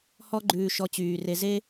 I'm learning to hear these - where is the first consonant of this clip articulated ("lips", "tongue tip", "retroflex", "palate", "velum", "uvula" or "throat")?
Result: throat